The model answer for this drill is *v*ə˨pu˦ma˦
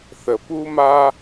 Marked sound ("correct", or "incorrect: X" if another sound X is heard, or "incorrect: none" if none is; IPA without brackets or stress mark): incorrect: θ